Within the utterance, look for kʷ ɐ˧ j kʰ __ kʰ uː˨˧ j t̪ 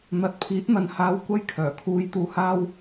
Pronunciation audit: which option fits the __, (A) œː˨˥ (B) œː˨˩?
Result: B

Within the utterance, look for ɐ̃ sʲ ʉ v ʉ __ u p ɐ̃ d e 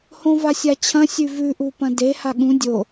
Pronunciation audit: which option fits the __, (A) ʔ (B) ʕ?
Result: A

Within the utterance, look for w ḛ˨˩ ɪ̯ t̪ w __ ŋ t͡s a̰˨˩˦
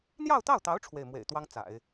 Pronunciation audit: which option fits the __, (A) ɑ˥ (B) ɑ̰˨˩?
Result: A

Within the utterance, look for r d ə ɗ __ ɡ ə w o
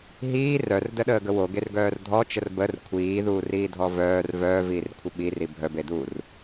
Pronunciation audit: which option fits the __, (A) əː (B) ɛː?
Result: A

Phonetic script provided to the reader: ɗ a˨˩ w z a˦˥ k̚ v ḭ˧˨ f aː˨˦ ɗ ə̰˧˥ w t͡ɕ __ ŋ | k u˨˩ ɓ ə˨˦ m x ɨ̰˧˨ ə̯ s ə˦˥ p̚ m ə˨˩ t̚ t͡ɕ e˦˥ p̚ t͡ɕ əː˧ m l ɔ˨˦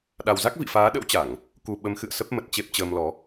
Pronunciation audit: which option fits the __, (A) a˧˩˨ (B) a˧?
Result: A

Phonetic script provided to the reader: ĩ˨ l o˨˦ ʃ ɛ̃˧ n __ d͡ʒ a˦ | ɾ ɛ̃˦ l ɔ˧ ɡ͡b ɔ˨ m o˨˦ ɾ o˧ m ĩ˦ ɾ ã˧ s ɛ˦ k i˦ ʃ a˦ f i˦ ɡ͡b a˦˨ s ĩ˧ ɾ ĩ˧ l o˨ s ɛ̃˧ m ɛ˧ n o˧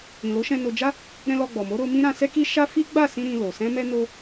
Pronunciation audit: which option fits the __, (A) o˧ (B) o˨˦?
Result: A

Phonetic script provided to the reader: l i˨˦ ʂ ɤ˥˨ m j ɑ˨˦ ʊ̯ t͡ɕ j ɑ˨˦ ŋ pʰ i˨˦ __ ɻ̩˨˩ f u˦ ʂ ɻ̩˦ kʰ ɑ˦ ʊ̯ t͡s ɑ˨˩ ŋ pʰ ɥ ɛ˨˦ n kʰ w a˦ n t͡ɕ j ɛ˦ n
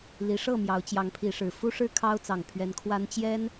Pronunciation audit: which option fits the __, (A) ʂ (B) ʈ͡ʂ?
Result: A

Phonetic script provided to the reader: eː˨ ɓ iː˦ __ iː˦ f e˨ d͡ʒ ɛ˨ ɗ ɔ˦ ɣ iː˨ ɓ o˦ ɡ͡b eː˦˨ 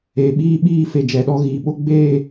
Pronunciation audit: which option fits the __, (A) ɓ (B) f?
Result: A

